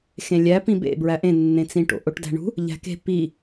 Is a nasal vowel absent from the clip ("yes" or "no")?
no